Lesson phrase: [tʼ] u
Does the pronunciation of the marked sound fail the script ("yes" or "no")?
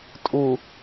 no